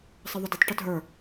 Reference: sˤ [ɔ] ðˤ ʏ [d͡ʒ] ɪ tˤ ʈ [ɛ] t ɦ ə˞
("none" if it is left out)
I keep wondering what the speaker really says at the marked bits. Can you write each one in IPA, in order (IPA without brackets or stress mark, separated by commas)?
ə, d, ʏ